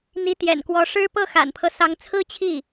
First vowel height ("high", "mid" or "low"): high